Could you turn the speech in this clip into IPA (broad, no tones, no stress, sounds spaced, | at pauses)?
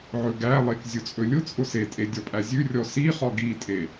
ʕ ɵ ɡ æ lˠ e k zʲ ʊ t͡sʼ ɵ lʲ ʊ t͡sʼ ʊ s e tʼ e dʲ ɔ pʼ æ zʲ ʉ rʲ ɔ s i χ ɔ ɡ i tʼ e